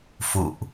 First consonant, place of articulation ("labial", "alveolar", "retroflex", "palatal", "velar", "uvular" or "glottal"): labial